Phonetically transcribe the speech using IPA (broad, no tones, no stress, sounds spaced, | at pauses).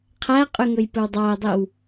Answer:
qʰ æ qʼ y ŋ ɵ j p ɵ w dˤ ɑ ə̯ dˤ i w